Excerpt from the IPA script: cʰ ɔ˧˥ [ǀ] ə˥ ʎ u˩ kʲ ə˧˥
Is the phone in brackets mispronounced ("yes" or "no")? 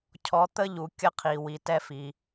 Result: yes